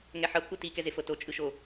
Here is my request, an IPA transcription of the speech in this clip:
ŋ ɛ ħ ɤ p ʔ u t i k ɛ z e f ɤ t o t͡ʃʼ ɯ ʃ o

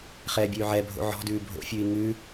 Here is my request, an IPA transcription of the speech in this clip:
χ ɛː bʲ ʉː ʕ ɛ bʱ o̰ ʕ ɔ̤ d ʉː bʱ o̰ fʲ ʉː i̯ ŋ ʉ

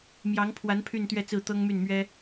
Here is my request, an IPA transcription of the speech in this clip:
m j ɑ˧˥ ŋ pʰ w a˧˥ n pʰ y˥˧ n t̪ ɥ ɛ˥˧ t͡s ɹ̩˥˩ t̪ ɤ˥ ŋ m y˥˩ n m ɥ ɛ˥

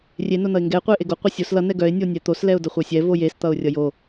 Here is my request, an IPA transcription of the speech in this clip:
rʲ e n o n ʌ ɪ̯ ŋ ɡ ɛ ɪ̯ qʷ ɛ ɪ̯ ʔ e ɡ o qʷ ɛ sʲ o s l ʌ n ɛ ɡ œ ɪ̯ nʲ o nʲ ɛ t̪ o s l ɛ ʊ̯ d ʌ χʷ œ sʲ ɛ v o j e s t̪ ʌ ʊ̯ rʲ ʌ j o

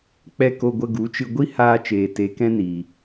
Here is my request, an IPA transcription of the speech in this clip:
k͡p ɛ˦ k o˧ ɡʷ ə˧ ɡ u˨˦ t͡ʃ ɨ˧ ɡʷ i˦ h aː˧ t͡ʃ eː˨ t e˨˦ k ɛ̃˦ n iː˨

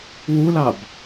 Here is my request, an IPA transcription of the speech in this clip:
w u l ɑ b

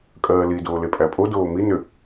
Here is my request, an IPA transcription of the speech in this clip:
kʼ ɜː l i d oː l e pʼ æ pʼ o d oː m i n ʏ

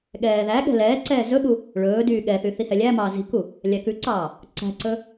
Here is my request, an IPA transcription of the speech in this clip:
ɠ ɛː ð æ ɠ ɛ̤ l ɛː ǀ ɛː z ɵ ɠ u | ɭ ɵː d yː ɠ ɛ θ y θ i h ɛ lʲ æ m ɑː z i̤ k u | lʲ æ k ʉ ǀ ɑː | ǀ æ̤ ǀ ɵ

